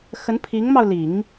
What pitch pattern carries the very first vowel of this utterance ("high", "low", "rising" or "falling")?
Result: rising